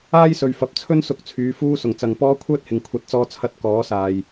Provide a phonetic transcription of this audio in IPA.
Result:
aː˥ j s ɵ˨ ɥ f ɐ˨ p̚ t͡sʰ ɵ˥ n s ʊ˧ k̚ t͡sʰ yː˨˧ f uː˥ s ʊ˨˩ ŋ t͡s ɐ˨ ŋ p ɔː˥ kʷʰ œː˥ t̚ h ɪ˨˩ ŋ kʷʰ ɐ˨˥ t̚ t͡s ɔː˧ t͡sʰ ɐ˧ t̚ k ɔː˨˥ s aː˨ j

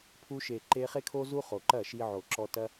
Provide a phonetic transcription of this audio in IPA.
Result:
pʰ u˧ ʃ e˨ ǃ e˧ χ e˦ kʰ o˦ z u˦ χ o˨ ǃ ɐ˦˨ ʃ i˧ ʕ o˨ ǁ ɔ˧ t ɐ˦

